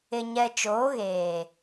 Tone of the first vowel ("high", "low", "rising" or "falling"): low